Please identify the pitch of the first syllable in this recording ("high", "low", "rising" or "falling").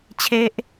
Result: high